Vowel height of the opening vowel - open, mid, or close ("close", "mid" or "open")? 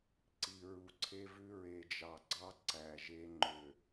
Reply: close